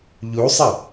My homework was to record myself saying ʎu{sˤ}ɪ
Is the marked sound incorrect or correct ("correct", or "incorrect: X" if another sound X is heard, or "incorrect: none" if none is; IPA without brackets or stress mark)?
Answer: correct